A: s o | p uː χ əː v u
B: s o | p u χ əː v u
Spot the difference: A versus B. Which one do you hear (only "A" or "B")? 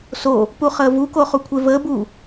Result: B